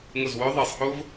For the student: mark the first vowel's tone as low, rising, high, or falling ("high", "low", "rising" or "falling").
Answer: falling